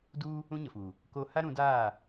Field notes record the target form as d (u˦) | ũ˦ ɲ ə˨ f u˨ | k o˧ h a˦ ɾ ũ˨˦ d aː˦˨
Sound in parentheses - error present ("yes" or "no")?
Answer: no